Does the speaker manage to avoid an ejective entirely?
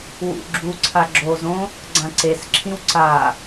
yes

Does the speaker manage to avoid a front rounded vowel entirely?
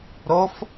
yes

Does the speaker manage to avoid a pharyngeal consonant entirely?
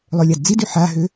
no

